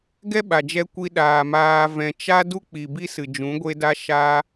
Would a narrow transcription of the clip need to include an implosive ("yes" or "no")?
yes